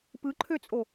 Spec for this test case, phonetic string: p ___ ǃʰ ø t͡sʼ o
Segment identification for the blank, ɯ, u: ɯ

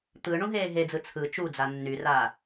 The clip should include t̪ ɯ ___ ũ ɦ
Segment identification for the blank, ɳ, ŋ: ɳ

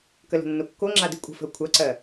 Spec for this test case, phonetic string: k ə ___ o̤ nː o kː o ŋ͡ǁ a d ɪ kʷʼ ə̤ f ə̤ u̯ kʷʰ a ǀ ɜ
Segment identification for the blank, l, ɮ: l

